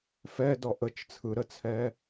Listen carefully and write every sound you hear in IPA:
f ɛ d ɔ ʔ ə t͡ʃ t͡sʰ ɯ ɾ ə t͡sʰ ɛ

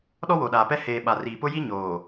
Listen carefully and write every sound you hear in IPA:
ɗ ɔ˦ w o˨ ɗ aː˨ p ɛ˦ h eː˨ ɓ a˨ r iː˨ p ʊ˦ j i˦ ɲ oː˨

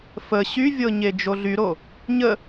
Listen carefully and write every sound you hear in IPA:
f ə ɕ y vʲ ɤ ɲ e d͡ʒ o ɮ y ɾ o | ɲ ə

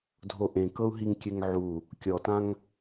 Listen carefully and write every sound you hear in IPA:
dʱ o ʔ ẽ k ɤ u̯ ɦ i ŋ kʲ ɛ ŋ ʕ u | kʲ ɔ t ã ŋ

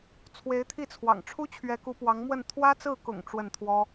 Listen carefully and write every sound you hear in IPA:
t͡sʰ w e˧˥ ɪ̯ t̪ʰ i˥˩ t͡sʰ w ɑ̰˨˩ ŋ ʈ͡ʂʰ u˥ t͡ɕʰ ɥ ɛ˧˥ k u˧˥ p w ɑ˧˥ ŋ m w ə˥˩ n t̪ʰ w ä˥ t͡s ɹ̩˥˩ k ʊ̰˨˩ ŋ ʈ͡ʂ w ə˥˩ n t̪ʰ w ɔ˥

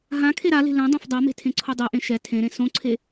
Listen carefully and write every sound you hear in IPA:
ɦ ã kʰ e ɾ a l e̤ l ɛ̃ dˤ ã f dˤ a m e̤ tʰ ẽ ǀʰ o dˤ e ʔ ẽ ʃ ɛ tʰ ẽ ɾ ẽ s õ ǀʰ e

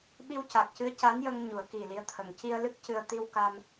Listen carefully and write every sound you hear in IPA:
ɓ i˧ w c a˨˩ k̚ c ɨ˧˥ ə̯ c a˧˥ n j ə˧ ŋ ɲ u˨˩˦ ə̯ k i˨˩ l i˧˥ ə̯ t̪ʰ ə˨˩ ŋ c i˧ ə̯ l ɨ˦˥ k̚ c ɨ˧ ə̯ t̪ i˧ w k a˧ m

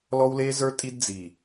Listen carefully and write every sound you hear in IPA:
l ɔ˦ w l e˦ z ə˞˦ tʼ i˦ d d͡z i˨

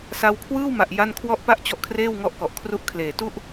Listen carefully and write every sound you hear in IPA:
s a˧ w kʰ w ɯː˥˩ w m a˨˩ ʔ j a˥˩ n kʰ w ɔ˥˩ ʔ p a˥˩ ʔ t͡ɕ ɔ˦˥ ʔ kʰ r eː˥˩ w ŋ ɔ˦˥ ʔ k ɔ˨˩ ʔ kʰ r u˦˥ ʔ kʰ l eː˨˩ t u˥˩ ʔ

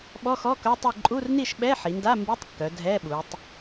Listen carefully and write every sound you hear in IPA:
ɓ ɔ˧˥˧ x ɔ˧˥˧ k œ˧˥˧ tˤ i˥˨ ǃʼ u˧˥˧ r n i˥˨ ʃ ɓ ɛ˧˥˧ ħ i˩˧ n d a˧˥˧ m b i˧˥˧ tˤ kː œ˩˧ dʱ ɛ˧˥˧ ɓ u˩˧ tˤ

